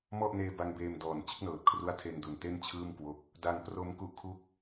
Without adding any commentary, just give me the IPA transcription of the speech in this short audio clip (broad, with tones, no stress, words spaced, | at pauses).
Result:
mɔ˥˩ʔneː˧ ba˧ŋbeː˧m dɔː˨˩n t͡ɕɯ˦˥k̚nɤː˨˩t̚kʰru˦˥a̯tʰe˧n du˨˩nte˥˩n t͡ɕʰɯː˥˩mkwo˦˥k̚ | da˧ŋ pro˧m ku˥˩ʔkʰu˥˩k̚